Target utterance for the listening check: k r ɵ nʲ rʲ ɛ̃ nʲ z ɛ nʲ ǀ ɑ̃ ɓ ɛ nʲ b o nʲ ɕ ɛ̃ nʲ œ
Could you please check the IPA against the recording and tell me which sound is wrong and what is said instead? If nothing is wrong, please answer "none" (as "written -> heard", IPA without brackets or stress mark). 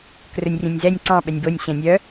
none